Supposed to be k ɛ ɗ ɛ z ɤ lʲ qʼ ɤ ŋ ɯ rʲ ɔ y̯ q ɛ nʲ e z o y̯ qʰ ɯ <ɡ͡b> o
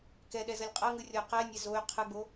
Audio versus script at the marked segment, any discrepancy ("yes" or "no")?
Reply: no